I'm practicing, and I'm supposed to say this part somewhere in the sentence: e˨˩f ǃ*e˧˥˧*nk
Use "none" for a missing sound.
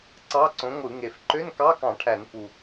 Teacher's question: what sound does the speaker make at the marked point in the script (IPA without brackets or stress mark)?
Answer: ø˧˥˧